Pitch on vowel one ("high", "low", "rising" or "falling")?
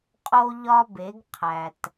high